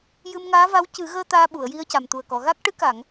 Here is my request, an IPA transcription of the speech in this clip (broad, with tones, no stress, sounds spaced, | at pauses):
j ɨ˧ m ŋ aː˧˥ v a˧˥ w c ɨ˨˩˦ ɣ əː˧ t̪ aː˧ ɓ u˨˩˨ ə̯ j i˧ ə̯ c a˨˩ m t̪ u˨˩ ə̯ k ɔ˨˩˨ ɣ a˦˥ k̚ ʈ ɨ˧˥ k a˨˩˨ ŋ